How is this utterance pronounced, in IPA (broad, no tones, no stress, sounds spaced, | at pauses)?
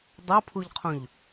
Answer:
dˤ o pʰ u ʎ qʰ õ ʎ